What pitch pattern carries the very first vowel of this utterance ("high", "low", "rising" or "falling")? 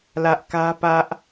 high